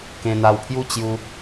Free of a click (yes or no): yes